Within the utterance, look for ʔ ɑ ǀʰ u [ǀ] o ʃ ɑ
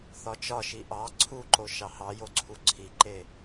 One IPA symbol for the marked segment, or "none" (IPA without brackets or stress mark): ǃ